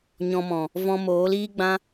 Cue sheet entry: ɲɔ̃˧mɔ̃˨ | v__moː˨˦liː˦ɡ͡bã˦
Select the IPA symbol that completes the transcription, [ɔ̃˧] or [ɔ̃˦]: ɔ̃˧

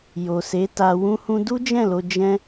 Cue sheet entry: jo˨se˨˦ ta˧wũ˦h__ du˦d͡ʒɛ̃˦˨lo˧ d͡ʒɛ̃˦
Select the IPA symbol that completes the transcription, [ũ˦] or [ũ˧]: ũ˦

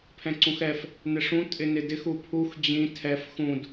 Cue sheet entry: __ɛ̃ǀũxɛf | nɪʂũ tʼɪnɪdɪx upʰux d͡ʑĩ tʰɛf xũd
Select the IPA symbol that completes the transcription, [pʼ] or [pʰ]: pʰ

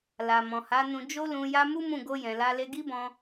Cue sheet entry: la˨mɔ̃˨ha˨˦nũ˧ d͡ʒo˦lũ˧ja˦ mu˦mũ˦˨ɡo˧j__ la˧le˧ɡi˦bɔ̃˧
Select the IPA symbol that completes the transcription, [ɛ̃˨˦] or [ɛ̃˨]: ɛ̃˨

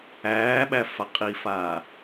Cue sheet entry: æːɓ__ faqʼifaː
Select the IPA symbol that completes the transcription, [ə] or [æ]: æ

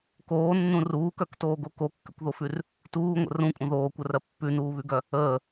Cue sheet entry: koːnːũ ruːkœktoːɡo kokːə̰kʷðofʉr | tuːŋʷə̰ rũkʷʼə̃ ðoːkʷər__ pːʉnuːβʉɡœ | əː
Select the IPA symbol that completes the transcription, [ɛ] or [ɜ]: ɜ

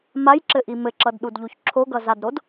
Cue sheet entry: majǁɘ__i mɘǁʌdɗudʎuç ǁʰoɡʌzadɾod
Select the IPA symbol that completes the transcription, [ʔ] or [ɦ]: ʔ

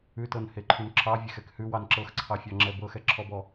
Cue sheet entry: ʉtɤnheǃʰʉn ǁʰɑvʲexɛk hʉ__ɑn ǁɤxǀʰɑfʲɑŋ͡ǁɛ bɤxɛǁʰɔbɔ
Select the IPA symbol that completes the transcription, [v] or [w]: w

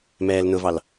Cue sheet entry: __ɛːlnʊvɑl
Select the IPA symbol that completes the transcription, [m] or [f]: m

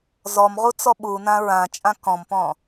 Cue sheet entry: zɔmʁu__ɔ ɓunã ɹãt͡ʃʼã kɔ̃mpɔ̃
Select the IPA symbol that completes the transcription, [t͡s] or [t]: t͡s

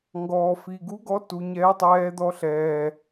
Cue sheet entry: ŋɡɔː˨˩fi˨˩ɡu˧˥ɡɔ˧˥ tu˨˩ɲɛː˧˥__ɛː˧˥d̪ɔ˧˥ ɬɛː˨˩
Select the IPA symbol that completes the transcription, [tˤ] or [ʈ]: tˤ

